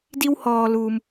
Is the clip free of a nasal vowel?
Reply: yes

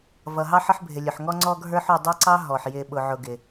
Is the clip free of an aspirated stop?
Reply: yes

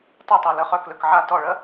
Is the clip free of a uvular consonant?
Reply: no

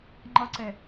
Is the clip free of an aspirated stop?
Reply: yes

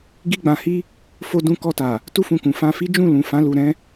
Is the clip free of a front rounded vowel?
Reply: yes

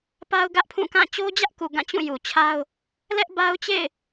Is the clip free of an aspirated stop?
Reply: no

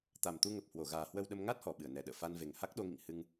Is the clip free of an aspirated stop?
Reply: yes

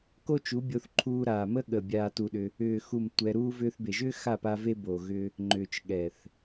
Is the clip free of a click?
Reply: no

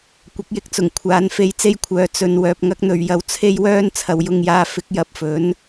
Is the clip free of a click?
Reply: yes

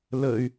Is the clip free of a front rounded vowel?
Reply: no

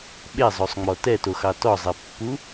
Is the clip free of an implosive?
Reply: no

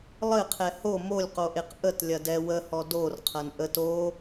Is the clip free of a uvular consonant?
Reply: no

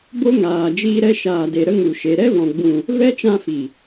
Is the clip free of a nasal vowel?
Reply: no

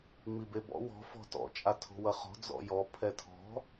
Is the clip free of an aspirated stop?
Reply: no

